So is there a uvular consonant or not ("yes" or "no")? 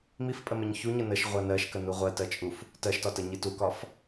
yes